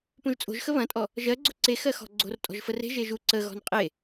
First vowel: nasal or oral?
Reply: nasal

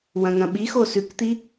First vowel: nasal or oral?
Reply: nasal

